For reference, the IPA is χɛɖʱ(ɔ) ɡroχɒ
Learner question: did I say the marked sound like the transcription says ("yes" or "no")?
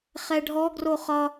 yes